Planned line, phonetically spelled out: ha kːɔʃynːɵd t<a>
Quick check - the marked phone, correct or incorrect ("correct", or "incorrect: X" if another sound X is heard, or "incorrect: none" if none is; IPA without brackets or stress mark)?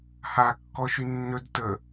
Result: incorrect: ə